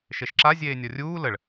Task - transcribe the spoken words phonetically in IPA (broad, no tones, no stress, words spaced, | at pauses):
ʃeʃǁa zʲeːnʲɒrʲuː ləɭ